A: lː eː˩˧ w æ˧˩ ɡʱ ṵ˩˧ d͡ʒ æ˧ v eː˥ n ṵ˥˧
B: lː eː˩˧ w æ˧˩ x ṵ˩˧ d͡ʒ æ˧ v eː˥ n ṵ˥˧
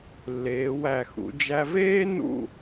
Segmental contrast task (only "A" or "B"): B